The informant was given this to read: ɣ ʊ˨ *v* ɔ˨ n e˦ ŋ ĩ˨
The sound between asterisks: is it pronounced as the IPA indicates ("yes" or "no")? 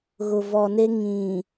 yes